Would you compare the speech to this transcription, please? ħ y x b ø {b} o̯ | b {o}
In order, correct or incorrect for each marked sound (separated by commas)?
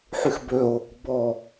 incorrect, incorrect